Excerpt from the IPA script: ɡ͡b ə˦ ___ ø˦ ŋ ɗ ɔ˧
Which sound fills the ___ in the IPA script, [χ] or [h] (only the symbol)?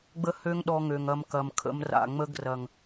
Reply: h